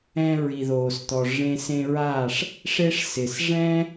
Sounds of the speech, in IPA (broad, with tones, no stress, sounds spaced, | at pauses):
ɛ̃˧ ɹ i˨ ð oː˨ s t̪ ɔ˨ ʐ ẽ˧ s ẽ˧ ɹ a˦˨ ʂ | ʂ e˧ ʂ s ɪ˨ s ʐ ɛ̃˦